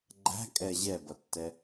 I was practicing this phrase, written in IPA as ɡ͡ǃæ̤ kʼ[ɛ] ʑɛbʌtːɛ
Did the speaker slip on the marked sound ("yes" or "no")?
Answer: no